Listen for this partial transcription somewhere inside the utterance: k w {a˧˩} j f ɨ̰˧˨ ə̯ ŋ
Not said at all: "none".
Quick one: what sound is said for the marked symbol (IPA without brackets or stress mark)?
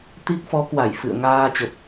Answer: a˧˩